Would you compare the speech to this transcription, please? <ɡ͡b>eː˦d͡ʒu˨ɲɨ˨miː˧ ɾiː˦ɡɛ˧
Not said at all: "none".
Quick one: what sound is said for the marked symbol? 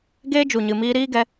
ɡ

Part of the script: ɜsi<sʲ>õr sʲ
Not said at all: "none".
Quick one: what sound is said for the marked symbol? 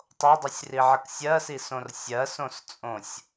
s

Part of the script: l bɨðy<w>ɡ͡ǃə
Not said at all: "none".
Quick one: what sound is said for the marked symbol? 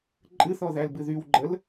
w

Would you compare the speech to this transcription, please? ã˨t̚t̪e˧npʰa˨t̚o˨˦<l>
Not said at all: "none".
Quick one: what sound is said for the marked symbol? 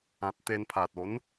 n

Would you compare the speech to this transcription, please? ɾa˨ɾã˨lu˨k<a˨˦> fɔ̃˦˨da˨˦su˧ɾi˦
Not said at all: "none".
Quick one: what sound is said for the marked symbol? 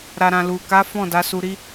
a˨˦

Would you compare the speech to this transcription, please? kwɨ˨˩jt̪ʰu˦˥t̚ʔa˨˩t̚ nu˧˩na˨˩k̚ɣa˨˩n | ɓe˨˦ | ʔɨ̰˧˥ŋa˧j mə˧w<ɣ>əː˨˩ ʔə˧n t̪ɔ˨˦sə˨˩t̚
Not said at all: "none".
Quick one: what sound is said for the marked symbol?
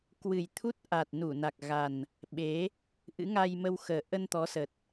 x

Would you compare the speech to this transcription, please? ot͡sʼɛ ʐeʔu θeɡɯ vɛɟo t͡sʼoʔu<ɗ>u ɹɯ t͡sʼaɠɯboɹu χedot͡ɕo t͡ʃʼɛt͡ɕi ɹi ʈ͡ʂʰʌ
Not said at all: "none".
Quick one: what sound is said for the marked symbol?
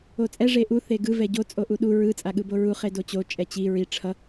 ɗ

